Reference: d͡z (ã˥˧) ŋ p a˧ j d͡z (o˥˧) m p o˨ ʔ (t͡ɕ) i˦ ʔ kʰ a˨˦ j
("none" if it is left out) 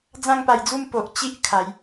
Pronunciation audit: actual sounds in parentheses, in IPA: ã˥˧, u˥˧, t͡ɕ

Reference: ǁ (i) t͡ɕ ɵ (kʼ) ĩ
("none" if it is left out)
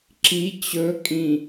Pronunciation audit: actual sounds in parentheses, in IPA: i, kʼ

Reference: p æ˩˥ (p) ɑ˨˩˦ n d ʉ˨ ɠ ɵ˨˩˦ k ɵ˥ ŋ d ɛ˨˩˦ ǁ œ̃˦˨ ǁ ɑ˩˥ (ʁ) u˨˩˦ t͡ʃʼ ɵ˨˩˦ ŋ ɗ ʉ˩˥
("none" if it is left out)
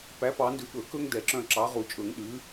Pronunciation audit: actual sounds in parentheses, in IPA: p, ʁ

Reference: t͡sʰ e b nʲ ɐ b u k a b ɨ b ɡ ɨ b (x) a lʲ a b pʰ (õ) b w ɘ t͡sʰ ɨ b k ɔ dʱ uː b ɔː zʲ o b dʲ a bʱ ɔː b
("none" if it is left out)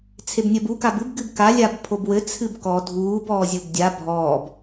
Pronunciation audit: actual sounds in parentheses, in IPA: k, o

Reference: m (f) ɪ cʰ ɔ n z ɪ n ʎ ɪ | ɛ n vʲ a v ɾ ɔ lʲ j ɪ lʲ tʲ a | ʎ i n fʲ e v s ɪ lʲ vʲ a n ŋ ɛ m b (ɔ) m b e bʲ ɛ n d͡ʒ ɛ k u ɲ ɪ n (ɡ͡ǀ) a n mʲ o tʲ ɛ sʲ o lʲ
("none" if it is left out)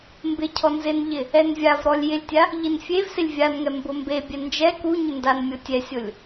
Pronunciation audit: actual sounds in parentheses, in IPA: b, ʊ, d

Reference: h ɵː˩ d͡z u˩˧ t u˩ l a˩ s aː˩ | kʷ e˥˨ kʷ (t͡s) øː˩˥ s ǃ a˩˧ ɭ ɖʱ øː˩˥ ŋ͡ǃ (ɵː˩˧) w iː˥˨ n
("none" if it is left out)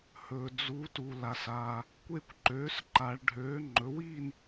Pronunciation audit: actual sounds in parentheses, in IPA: ǃ, ɵ˩˧

